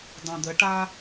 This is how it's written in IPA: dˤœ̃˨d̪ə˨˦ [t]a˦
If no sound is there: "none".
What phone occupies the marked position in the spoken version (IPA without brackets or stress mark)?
ʈ